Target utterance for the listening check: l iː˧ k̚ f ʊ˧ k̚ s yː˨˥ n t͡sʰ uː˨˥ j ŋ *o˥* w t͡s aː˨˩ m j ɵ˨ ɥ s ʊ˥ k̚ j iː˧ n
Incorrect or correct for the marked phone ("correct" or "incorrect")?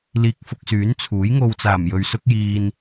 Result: incorrect